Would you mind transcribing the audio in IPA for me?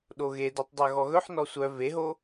ɗ o ɣ e d o tˤ dˤ œ ɣ ɔ ɣ ɵ ħ n ɔ sʷ œ v e ɦ o

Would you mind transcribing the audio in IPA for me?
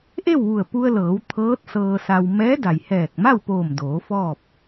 ʔ e˥˨ w ʋ u˧˩ ə̯ p u˧ ə̯ l ɤː˩˧ w t̪ʰ ɤː˧˥ t̚ s ɤː˧ s a˧ w m ɛː˧˥ d a˩ j h ɛː˧˩ k̚ m a˥˨ w p oː˧˩ m d oː˩˧ f ɔː˥˨ p̚

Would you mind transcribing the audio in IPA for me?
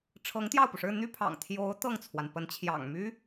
ʈ͡ʂʰ ɤ˧˥ ŋ t̪ j ɑ˥˩ ʊ̯ p u˩ ʂ ɻ̩˥˧ n̪ y˥˩ pʰ ɑ̰˨˩ ŋ t̪ʰ j o˧˥ ʊ̯ t̪ ɤ˥˩ ŋ t͡sʰ w a˩ n p ə˧˥ n t͡ɕʰ j ɑ̰˨˩ ŋ m y˥

